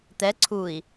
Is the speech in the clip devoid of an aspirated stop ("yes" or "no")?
no